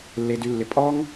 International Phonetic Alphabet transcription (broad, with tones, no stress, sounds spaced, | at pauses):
lː e˧ d y˧ lː ɪ˧ pʼ ɔ˦ ŋ